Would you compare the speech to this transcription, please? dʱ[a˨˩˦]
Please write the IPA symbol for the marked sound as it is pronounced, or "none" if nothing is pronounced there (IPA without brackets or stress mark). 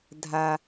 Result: a˦